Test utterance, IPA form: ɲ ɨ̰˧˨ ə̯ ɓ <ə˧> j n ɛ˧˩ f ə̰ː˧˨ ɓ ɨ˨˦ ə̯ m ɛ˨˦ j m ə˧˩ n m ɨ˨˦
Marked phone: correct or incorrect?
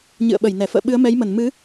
incorrect